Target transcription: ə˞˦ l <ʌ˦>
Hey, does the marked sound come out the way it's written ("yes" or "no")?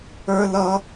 yes